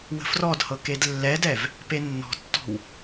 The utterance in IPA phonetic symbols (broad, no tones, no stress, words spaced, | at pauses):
wə̤frɔdhɤ kedlːɛdɛv | penːɔ̤tːɔ̤w